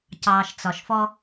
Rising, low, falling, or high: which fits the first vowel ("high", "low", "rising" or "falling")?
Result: low